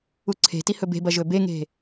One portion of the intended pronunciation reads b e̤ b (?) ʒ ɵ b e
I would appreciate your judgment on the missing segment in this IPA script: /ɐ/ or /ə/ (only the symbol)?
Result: ɐ